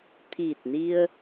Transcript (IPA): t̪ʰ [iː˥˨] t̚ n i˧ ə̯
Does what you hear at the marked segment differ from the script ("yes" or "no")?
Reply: yes